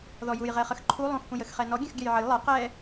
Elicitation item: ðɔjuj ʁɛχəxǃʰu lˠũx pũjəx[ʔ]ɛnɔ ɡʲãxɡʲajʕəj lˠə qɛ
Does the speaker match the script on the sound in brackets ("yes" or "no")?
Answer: no